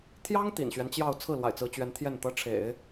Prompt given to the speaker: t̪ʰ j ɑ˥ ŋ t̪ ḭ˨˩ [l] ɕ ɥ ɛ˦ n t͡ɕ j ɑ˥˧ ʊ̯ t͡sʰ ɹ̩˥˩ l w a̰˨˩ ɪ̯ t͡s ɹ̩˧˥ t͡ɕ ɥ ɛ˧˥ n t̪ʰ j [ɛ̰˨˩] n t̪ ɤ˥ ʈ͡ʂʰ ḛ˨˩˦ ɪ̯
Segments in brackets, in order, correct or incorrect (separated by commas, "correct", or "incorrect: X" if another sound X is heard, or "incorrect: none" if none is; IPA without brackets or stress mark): incorrect: n, incorrect: ɛ˥˩